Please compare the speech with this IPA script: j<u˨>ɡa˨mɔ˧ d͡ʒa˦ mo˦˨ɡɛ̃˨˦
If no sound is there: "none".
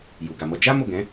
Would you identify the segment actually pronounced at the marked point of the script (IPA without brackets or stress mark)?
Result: u˨